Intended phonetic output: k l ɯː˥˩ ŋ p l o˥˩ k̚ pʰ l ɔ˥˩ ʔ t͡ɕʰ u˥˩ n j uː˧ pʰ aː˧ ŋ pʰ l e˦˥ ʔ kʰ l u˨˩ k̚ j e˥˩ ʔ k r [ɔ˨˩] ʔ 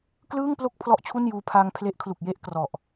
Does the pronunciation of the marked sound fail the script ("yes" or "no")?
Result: no